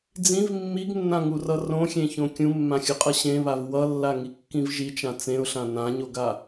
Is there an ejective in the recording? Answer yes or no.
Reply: yes